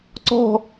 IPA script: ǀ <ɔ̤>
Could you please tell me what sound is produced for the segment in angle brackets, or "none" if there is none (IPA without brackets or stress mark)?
ɔ̤